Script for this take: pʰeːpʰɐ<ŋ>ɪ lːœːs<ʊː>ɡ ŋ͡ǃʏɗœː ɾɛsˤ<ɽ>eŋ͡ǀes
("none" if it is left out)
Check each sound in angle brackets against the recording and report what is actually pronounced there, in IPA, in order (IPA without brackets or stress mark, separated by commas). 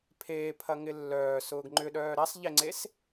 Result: ŋ, ʊː, ʎ